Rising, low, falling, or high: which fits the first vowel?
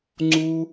high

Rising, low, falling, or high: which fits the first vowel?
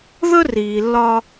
high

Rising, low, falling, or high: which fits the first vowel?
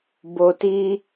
low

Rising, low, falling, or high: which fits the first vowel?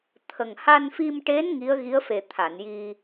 low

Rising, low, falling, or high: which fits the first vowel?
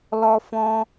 high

